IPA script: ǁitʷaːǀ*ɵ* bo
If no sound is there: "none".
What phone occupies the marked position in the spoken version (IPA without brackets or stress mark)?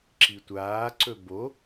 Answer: ɵ